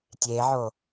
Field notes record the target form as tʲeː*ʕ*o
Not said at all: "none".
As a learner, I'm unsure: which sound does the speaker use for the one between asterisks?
ʕ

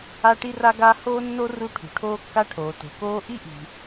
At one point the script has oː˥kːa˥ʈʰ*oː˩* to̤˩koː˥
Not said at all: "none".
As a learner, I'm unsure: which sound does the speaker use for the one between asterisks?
oː˩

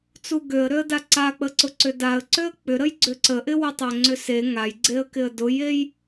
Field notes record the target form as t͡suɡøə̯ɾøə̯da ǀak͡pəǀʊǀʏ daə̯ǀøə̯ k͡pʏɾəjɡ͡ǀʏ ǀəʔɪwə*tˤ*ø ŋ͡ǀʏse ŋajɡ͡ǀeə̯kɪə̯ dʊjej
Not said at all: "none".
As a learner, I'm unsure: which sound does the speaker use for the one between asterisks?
tˤ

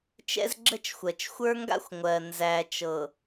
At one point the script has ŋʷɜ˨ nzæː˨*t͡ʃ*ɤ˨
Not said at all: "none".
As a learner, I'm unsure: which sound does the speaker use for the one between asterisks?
t͡ʃ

